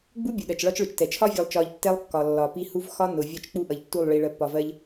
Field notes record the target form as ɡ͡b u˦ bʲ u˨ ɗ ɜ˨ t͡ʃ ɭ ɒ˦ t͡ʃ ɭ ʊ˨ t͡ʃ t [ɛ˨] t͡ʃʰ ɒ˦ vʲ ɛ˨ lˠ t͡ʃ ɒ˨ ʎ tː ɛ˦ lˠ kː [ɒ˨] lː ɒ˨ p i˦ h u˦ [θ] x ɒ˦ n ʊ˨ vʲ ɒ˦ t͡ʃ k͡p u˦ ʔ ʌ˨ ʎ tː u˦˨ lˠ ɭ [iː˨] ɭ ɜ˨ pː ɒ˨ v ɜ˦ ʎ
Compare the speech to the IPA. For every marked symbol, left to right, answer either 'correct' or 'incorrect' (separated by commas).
correct, correct, incorrect, incorrect